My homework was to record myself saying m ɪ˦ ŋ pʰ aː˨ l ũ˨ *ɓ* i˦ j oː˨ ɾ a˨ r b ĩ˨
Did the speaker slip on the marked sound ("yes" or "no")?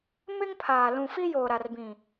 yes